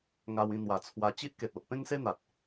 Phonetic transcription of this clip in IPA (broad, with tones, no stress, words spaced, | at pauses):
ŋa˧wĩ˧n̪wa˨˩t͡sʰwa˧ t͡ɕi˦ʔke˨t̚o˨ʔ pẽ˦ŋse˦n̪a˨t̚